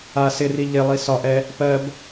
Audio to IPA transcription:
a s ɪ r i ʎ ɪ lˠ i s ɒ ʔ ɛ | p ɜ b

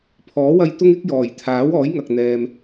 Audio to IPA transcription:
pʰ ɔː˨˥ w ɐ˧ j t̪ ʊ˥ ŋ ɪ˥ k̚ j ɔː˨˩ j t̪ʰ aː˨˥ w ɔː˨˥ j ŋ ɐ˨ k̚ n̪ ɛː˨ m

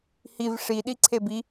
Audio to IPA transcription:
h i v ʂ i ɗ i ǀʰ e b i

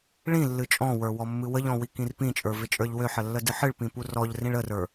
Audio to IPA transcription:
ɭ ĩ lː ɨ t͡ʃʼ ɔ̃ w ə˞ w ɔ mː ɨ w ə ʎ ɔ̃ w i k ĩ r p ĩ t͡ʃʼ ə˞ v ɪ t͡ʃʼ ə˞ ʎ w ø ħ ə lː ə d ɨ ħ ɨ ɭ p ĩ p u r ɔ ʎ r ĩ ɭ ə r ə˞

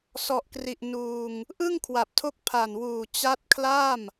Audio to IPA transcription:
s ɔ˨˩ ʔ k r i˨˩ ʔ n uː˧ ŋ | ʔ ɯ˥˩ ŋ kʰ w a˨˩ p̚ tʰ o˦˥ k̚ pʰ a˨˩ n w uː˨˩ t͡ɕ a˦˥ t̚ kʰ l a˥˩ m

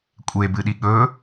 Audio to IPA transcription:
kʷʼ e b ɨ ɗ i ɠ ɵ

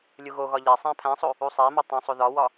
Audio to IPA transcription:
lʲ u ɣ o ɣ ɒ ʎ æ sˤ æ̃ pʰ æ̃ sˤ o | u sˤ æ m ɒ tˤ õ sˤ o ð ɒ w ɒ

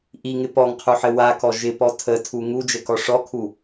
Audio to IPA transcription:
ʔ i ŋ ɪ p ɔ ŋ qʰ u ħ ɘ w a k ɔ ʒ ɪ p ɔ tʰ ə tʰ u ŋ u d͡ʒ ɘ k ɔ ʂ ɔ kʰ u

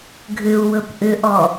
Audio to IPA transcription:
ɡʱ ʏ u̯ w ɵ p ʔ ʏ ʔ ɔ

